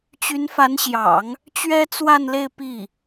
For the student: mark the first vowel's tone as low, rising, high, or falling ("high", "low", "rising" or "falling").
rising